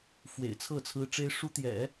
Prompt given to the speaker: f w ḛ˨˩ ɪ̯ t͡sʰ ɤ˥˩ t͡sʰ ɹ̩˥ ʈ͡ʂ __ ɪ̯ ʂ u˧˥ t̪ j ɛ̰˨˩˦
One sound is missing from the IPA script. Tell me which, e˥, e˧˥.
e˥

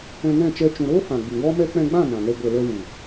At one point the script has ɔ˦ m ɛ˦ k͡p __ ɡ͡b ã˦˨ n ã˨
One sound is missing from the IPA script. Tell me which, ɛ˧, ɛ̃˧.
ɛ̃˧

